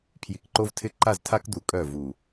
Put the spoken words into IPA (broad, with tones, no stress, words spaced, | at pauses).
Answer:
pʰji˨kǃo˦vtʰɪ˦˨ ǃa˦˨ztʰa˦kd̪u˨ kʼœ˦˨ vu˨